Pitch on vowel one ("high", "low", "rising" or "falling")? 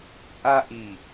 high